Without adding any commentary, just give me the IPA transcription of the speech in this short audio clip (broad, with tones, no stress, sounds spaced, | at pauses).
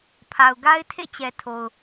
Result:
pʰ a˨ ʊ̯ ɡ a˦ ɪ̯ tʰ ḛ˦˨ t͡ɕ ɛ˨ tʰ o˨ ʊ̯